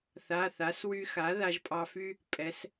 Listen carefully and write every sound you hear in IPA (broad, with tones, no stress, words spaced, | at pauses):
θa˩˧˩θa˩˥s wy˧xa˩˥ ða˧ʒpʼɑ˧fy˥ | pʼɛ˩˥s